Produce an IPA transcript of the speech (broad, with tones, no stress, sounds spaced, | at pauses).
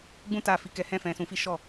ɡ͡b ũ˦ t a˦˨ f i˨˦ k ɛ˧ h ɛ̃˦ f ɛ̃˧ s ũ˧ f i˦ ʃ ɔ˦˨